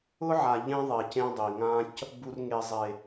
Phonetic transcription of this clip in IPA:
ʊ˦ ʕ a˨ ʎ ẽ˦ ðˤ e˨ c ẽ˦ dˤ i˨ ŋ ã˦ c | b u˨ r ŋ e˨ zˤ e˨

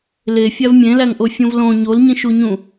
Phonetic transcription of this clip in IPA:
l e fʲ æ v mʲ ẽ l æ ŋ ʔ o fʲ ũ v l õ ɲ o l ɲ ĩ ʃ u ɲ ũ

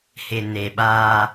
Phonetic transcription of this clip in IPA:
h ɪ˨ n e˨ ɓ aː˦

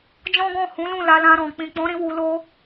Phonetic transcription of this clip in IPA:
d͡ʒ ɔ̃˦ ɡ ɔ̃˦˨ h ũ˨˦ l ũ˦˨ l a˧ l ã˧ ɾ ɔ̃˨ k͡p ĩ˨ k͡p ɔ̃˨˦ ɾ ĩ˧ w u˨ l o˧

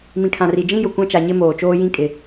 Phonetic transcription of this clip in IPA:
m ĩ˨ kʰ ã˨ r i˨ d͡ʒ ĩ˦ j ʊ˨ kʷ ã˦ t͡ʃ a˨ ɲ ɪ˦ m oː˨ t͡ʃ oː˦ j ĩ˦ kʼ ɪ˨

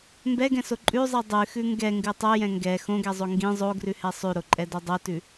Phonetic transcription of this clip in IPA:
m b ɛ ɡ ɛ̃ s o ǃʼ ʉ zˤ i dˤ ʉ x ʉ ŋ ɡ ɛ ŋ ɡ ʉ tˤ o j ɛ̃ ŋ ɡ ɛ x õ ɡ ɛ zˤ o ŋ ɡ ĩ zˤ o ɡ r ʉ h ɛ sˤ ʉ ɾ o ǃʼ ɛ d o dˤ o t ʉ

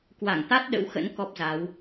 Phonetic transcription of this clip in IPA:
k w a˧˩ ŋ t̪ a˦˥ t̚ ɗ ə̰˧˥ w x ə̰˧˥ n k ɔ˦˥ p̚ z a˨˦ w

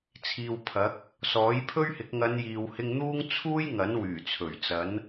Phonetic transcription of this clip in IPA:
t͡sʰ iː˨ w pʰ ɐ˨˥ k̚ | s ɔː˨˥ j pʰ ɵ˥ ɥ h ɪ˨˥ k̚ ŋ ɐ˨˧ n j iː˨ w h ɪ˧ ŋ n̪ uː˥ ŋ t͡sʰ uː˥ j ŋ ɐ˨˥ n w yː˨˩ t͡sʰ ɵ˨˩ ɥ t͡s ɐ˨˥ n

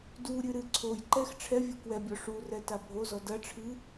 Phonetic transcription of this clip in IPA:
d u ɾʲ ɨ ɾ ɨ ǀʰ o j ǃ ɛ x ʈ͡ʂʰ ɛ vʲ u k w ɛ bʲ ɔ ʂ u r ɛ t a bʱ o z ɔ d ɐ ʈ͡ʂʰ ɨ

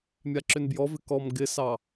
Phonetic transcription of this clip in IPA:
mʲ a ǁ ʏ n b j ɔ v ɪ k ɔ m ɡ ɪ s ɑ

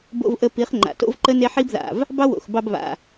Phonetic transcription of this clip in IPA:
b o̰˧ v ʔ ə˧ p i˨˦ χ ŋ͡ǃ a̰˨ t o̰˦ v ǃ ə˦ n e˦ ħ i˦ b ð a̰˨ v | b ɑ˦ w o̰˨ x b ɑ˧ b β a̰˨

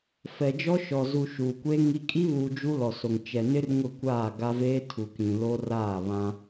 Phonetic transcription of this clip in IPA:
f ɛ˨ d͡ʒ ɔ˦ ʃ ɔ˨ z u˨ ʃ uː˨ kʷ eː˦ ŋ i˦ kʼ i˦ β uː˨ d͡ʒ u˦ l ɔ˨ s o˨ ŋ t͡ʃ ɛ˨ n ɪ˦ r ŋ ʊ˦˨ kʷ aː˦˨ ɡ a˦ v eː˦ tʰ u˨ k ĩ˨ l o˦ r aː˦˨ β ã˦

